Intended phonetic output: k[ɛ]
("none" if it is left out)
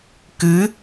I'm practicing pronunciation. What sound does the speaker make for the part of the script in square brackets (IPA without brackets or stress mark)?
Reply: ɨ